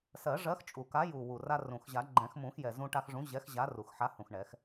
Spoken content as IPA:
s ɜ˨˩˦ ʐ ɜ˨˥ x t͡ʃʼ u˨˩ k a˨˥ j u˨˩ w u˨˩ r a˧ r ũ˨˩ x ʑ a˨˩˦ ɡ͡ǃ ɛ̃˨˩˦ x m ũ˨˩˦ x j ɛ˨˩ z ũ˧ ʈ a˧ x ʐ ũ˨˥ ʑ ɛ˨˥ x ʑ a˨˥ r u˨˩ x ħ a˨˥ h ũ˨˩ x ɳ ɛ˨˩˦ x

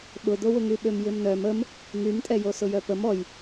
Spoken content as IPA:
ɓ ʊ d̪ o w ʊ ŋ y ɓ ø m j ɪ m n œ m ə m | ŋ y m tʼ ɛ j o s ʊ j œ p ə m ɔ j

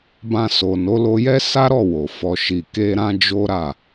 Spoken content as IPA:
b ã˧ s o˨ n o˨˦ l o˧ j ɛ˦ s a˦ ɾ ɔ˦˨ w o˨ f ɔ˨ ʃ i˨ k e˧ ɾ ã˦ d͡ʒ o˦ ɾ a˦˨

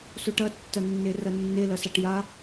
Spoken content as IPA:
s o ʈ ɐ tː ɐ nː e r ɐ nː e l ɐ s a ʈ j a

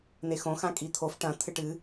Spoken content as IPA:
n̪ e x õ x ã kʼ i t̪ʰ o f ʈ ɐ̃ t̪ʰ ɨ ʈ ɨ

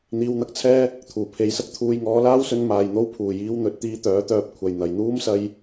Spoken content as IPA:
n̪ iː˧ w n̪ ɐ˥ k̚ t͡sʰ ɛː˥ | t̪ʰ uː˨˩ pʰ e˨˧ j s ɐ˥ k̚ t̪ʰ uː˨˧ j ŋ ɔː˨˥ l aː˥ w s ɵ˧ n m aː˨ j n̪ o˥ w pʰ uː˨˩ j iː˧ w n̪ ɵ˨˥ t̚ t̪ iː˧ t̪ œː˨˥ t̪ œː˧ p̚ kʷʰ ɐ˨˩ j n̪ ɐ˨˩ j n̪ uː˥ m s ɐ˧ j

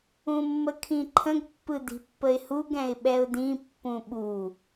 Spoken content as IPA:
ũ mː ə kʰ ĩ ǃʰ ə̃ ɡ pː ɯ d i̤ pː ə ɪ̯ h u ɡ ɛ̃ ɪ̯ ɓ ɛ ʊ̯ d ĩ pː ũ ɓ u

